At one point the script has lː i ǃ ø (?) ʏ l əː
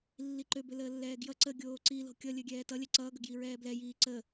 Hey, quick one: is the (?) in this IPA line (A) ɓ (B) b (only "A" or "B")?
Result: B